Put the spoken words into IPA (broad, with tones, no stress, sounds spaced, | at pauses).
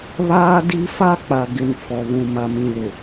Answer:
β aː˦ d i˦ f a˦ k͡p a˨ ɡ ɪ˨ n f ɔ˨ β ũ˨ m a˨ m ĩ˨ l ʊ˨